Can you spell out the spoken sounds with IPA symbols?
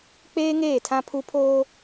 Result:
k͡peː˦ŋeː˦˨tʰã˦pʰu˦ pʰoː˦

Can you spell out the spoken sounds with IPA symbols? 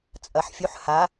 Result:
t͡sʼɐħ fʲuħ ha

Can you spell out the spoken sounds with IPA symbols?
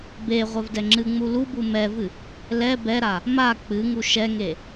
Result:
be ʁʷɛvdɛŋ͡ǁɨŋ͡mu lubu mɛvɨ | lɛ bɛɾa | ma k͡pɨŋu ʃɛŋe

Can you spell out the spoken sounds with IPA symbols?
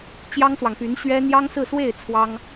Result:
t͡ɕjɑ˥ŋswɑ˨ŋpy˧˥n ɕɥɛ˥ n̪jɑ˥ŋsɹ̩˥˧ swe˥˩ɪ̯ t͡sʰwɑ˥ŋ

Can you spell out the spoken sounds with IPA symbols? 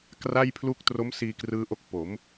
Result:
kra˥˩j pʰlu˦˥k̚tro˦˥msiː˧ krɯː˦˥ʔo˦˥k̚ po˩˦m

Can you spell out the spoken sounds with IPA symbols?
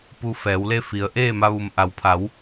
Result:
pu˧ fɛː˩˧wle˥˨fi˩˧ə̯ ʔeː˥˨ma˧ʋu˩m ʔa˩wpʰa˩˧w

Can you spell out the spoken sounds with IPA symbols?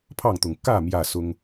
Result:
pʰɑ˥˨ŋt̪ʊ˨˩ŋ kä˥˨ mjä˥˨sʊ˦ŋ

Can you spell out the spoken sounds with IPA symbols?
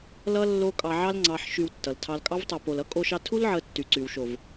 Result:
lʌ˧ lːo˧ kʼɑ˨ʕɑ˧lŋ͡ǀɑ˨ħ ʃy˨w tːʌ˨ltʰɑ˧l kʼɑ˧vtˤʌ˨ po˨lʌ˦ kʼo˧ʃɑ˧ tʰu˦l ʕə˧tːy˨ǀy˨w ʃo˨v

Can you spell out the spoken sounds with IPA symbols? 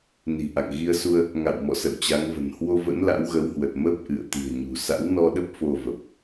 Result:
ni̤˨˩ʔa̰˧˨ŋ ɣi˧ə̯su˧ə̯ | ŋa̰˧˨wmɔ̰˧˨sə̰˧˨w t͡ɕa˨˦ŋvə̤˨˩n hwo˧və̰˧˥n la̰˧˥wɣə˨˦whwə˨˩t̚ mə˦˥p̚ʔɨ̰˧˨ə̯ t̪i̤˨˩ə̯ɲṳ˨˩ sa̰˧˥wnɔ˧ɗə˦˥p̚ fo˧və˨˩p̚

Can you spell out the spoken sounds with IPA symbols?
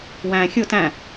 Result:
wæ̃ xʲʊ tæ̃

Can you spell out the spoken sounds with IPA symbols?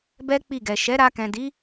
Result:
bɛ˦ k͡pi˦˨ɡɛ˨ ʃɛ˨˦ɾa˧kɛ̃˨di˨˦

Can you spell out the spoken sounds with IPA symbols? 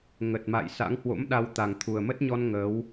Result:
ŋə˨˩t̚ma̰˧˨jsa̰˧˥ŋ hwo̰˧˥mɗa˧wt̪a˨˩ŋ t̪ʰu˨˩ə̯mə˦˥t̚ɲɔ˧n ŋəː˨˦w

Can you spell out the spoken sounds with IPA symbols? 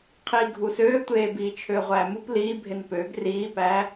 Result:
qʰiːɡʱusøːtʷeː biːt͡ʃʰøːʁʷæːmup liːbʱen pøːɡ riːpæː

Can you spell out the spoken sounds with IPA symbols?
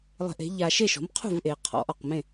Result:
lˠe̤˧ʔe̤˩˥ʎa˧ ʃe˥˩ʃɔ̤˩˥mqʰṳ˥˩vʔeː˩ qʰɔ̰˩˥ʔɔ˩qmẽ˥˩

